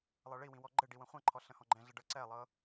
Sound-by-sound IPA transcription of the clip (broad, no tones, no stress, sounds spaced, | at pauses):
lˠ ɤ ɭ i w ĩ w ɔ ɡ͡ǃ ɘ ɖ i w ə̃ χʷ ã ǃʰ ɔ ɬ ə̃ h ɔ̃ ɡ͡ǃ ɛ̃ ɮ ə ɖ ɤ ǀ ɛ lˠ ɤ